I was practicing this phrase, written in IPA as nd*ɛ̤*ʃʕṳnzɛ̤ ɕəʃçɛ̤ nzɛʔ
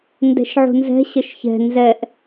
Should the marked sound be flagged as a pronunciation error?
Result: no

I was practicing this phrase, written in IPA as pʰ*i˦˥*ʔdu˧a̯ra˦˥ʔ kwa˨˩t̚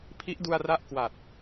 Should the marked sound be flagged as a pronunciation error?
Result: no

